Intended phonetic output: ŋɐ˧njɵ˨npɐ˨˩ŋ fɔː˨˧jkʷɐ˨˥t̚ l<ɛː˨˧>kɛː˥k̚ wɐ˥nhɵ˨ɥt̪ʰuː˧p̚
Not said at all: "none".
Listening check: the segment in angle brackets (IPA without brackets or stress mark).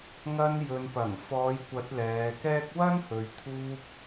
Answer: ɛː˨˧